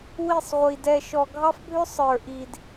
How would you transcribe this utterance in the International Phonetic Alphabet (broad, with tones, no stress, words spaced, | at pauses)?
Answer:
wi˦˨sˤʁʷi˨ dɛ˨ʃɔ˨ ɡʱɑ˦fbʱʏ˦ sˤə˞˨ʔi˨d